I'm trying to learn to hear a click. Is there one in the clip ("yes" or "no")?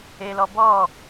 no